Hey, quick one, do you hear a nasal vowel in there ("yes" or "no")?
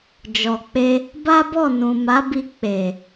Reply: yes